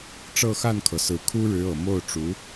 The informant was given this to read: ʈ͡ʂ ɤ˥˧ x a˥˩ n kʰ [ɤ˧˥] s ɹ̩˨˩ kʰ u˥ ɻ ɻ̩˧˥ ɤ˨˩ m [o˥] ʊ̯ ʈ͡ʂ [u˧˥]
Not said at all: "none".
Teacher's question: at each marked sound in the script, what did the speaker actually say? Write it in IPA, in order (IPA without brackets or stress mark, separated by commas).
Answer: ɤ˩, o˥˩, u˧˥